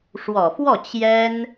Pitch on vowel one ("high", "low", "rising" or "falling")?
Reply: low